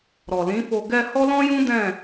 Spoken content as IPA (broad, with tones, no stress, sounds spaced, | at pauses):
ɾ ɔ˨ l ĩ˨˦ f o˧ ɡ ɛ˧ h ɔ˦ l ɔ̃˦ j ũ˦ d ɛ̃˦˨